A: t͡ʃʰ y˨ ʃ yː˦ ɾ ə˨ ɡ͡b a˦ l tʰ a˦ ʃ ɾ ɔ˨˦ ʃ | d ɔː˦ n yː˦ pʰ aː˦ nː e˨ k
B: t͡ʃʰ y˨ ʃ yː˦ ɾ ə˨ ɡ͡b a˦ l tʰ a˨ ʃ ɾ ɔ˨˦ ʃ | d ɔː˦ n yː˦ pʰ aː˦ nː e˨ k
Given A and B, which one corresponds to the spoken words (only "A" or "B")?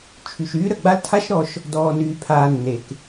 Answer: A